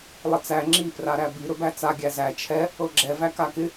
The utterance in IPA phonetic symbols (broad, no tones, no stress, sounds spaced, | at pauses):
lˠ ɪ t͡s æ ŋ͡ǁ i p r a ɾ æ b i ɾ ɵ b æ t͡s a ɡʲ æ z æ t͡ʃʰ ɛ | ɤ ɡ͡ǁ ɛ v æ k a k ɪ